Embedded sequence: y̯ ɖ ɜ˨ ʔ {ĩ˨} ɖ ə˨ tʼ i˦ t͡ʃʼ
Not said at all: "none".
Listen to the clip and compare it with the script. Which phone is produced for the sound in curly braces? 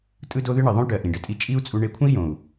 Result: ĩ˨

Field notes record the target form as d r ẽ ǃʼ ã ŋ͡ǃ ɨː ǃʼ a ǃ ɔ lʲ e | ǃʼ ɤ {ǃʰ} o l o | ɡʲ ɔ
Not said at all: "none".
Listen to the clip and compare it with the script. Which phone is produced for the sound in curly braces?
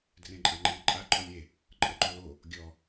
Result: ǃ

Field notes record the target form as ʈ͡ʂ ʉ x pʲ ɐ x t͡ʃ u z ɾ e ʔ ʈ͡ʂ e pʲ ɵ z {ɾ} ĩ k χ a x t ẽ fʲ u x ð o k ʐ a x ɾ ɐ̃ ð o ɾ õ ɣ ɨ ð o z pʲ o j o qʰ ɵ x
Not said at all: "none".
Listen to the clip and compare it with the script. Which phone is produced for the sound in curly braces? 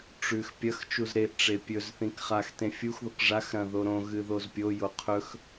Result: θ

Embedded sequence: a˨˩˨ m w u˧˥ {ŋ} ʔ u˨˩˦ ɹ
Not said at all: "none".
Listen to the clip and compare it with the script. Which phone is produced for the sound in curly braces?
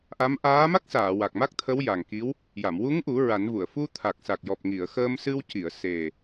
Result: ŋ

